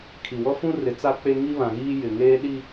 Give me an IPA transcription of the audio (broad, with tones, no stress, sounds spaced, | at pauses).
kʰ i˨ w ɔ˦ f ũ˦ r ɪ˨˦ t͡s a˦ k͡p e˦ ŋ i˦ β ã˨ ɣ iː˦ j ɪ˨ ŋ eː˦ ɗ i˦